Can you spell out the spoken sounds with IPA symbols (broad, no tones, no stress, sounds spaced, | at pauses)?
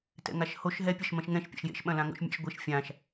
t ɛ̰ ŋ a ʃ h o ʃ ɦ ɛ pʲ ɐ ʃ m ɐ̃ ʃ ŋ ɛ̃ ʃ pʲ a̰ ʃ j ḛ ʃ ɓ ɐ̃ l ã ŋ o̰ ʃ mʲ a̰ ʃ ɡʷ e ʃ fʲ ã ʃ